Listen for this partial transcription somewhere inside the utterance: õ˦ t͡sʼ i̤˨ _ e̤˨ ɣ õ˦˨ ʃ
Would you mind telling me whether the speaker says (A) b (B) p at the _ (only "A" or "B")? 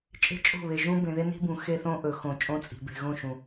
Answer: A